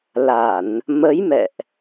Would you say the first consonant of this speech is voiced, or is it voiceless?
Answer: voiced